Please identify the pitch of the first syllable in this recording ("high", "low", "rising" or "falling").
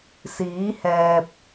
rising